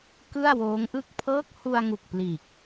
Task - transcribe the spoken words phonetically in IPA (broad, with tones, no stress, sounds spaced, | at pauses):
k ɯ˥˩ a̯ w oː˦˥ ŋ ʔ ɯ˥˩ k̚ pʰ ɤː˦˥ k̚ h u˧ a̯ ŋ u˨˩ k̚ p l iː˨˩ k̚